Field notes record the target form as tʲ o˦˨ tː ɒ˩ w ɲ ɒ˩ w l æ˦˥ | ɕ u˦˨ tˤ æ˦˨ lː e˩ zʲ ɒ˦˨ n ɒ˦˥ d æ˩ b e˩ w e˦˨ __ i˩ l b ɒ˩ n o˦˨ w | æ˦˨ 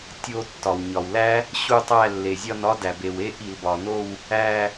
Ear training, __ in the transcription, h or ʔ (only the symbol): ʔ